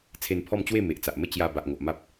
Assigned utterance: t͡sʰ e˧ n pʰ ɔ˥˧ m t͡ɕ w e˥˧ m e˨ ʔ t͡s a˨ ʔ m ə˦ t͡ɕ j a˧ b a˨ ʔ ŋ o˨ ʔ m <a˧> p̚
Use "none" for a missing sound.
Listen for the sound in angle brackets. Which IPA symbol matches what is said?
a˦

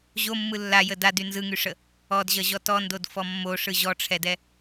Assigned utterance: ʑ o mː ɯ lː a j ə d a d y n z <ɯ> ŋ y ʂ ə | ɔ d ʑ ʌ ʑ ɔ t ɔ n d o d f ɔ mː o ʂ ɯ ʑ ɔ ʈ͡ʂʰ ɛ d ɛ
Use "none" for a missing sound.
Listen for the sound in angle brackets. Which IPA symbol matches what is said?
ɯ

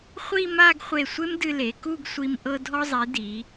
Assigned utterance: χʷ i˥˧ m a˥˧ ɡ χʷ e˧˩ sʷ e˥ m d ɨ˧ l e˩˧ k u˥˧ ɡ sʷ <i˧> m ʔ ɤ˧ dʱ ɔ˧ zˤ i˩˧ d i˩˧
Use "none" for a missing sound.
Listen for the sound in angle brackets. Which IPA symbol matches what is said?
i˧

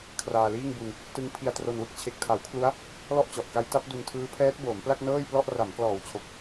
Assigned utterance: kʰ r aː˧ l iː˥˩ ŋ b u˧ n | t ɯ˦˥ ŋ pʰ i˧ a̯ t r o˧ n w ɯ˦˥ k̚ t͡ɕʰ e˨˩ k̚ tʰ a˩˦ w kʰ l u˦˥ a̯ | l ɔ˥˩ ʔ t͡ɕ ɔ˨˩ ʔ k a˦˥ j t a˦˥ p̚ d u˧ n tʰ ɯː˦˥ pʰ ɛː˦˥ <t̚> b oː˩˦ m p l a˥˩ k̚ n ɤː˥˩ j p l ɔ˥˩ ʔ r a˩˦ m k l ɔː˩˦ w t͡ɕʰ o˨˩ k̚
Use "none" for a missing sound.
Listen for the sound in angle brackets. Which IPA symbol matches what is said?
t̚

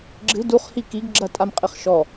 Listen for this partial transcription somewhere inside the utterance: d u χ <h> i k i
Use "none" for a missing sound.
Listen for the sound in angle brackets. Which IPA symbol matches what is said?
h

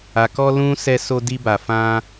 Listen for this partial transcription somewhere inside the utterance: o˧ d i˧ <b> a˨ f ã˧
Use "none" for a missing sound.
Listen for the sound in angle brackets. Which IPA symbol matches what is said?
b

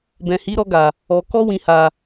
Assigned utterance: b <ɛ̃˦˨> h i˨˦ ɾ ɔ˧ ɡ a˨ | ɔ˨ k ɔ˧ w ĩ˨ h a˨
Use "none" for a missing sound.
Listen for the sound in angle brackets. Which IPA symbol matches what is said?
ɛ̃˨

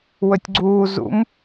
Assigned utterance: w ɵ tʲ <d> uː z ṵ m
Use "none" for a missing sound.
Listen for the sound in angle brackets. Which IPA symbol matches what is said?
ɡ͡ǀ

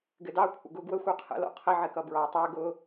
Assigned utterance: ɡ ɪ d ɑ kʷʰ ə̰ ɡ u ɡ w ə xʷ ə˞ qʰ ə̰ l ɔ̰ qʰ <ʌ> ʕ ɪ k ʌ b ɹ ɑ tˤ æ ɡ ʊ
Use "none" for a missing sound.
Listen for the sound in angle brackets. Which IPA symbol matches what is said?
ə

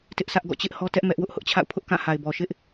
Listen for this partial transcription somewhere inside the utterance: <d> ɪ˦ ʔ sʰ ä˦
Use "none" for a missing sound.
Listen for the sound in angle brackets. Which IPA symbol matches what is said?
t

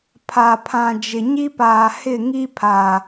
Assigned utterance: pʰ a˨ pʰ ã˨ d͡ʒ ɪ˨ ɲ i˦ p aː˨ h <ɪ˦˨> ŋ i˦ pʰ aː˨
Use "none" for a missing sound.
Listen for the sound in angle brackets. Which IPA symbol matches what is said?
ɪ˦˨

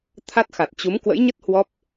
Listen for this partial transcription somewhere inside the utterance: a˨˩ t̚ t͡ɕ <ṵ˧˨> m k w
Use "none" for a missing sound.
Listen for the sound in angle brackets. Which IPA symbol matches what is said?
u˨˦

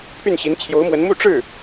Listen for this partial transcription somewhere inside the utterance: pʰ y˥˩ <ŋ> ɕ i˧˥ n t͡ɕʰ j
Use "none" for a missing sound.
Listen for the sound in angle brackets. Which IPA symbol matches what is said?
n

